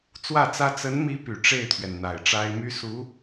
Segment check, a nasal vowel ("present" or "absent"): absent